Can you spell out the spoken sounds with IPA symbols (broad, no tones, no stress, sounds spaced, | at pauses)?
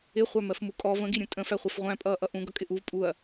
ɪ χʷ æ m ɜ f m u kʼ ɔ v ə̃ ɡ i ɾʲ ũ tʼ ə̃ f æ χʷ ɛ f ʁʷ æ̃ pʼ ʌː ʔ ʌ ʔ ũ ɡ ʌ kʼ ɪ ʔ u v pʼ u ɐ̯